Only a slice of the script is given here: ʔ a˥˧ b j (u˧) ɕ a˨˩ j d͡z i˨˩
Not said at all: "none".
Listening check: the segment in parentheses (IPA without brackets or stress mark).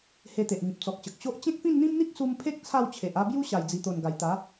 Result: u˦